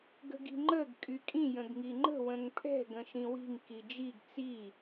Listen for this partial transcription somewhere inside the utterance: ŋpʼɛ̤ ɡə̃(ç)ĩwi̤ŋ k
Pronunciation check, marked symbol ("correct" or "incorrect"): incorrect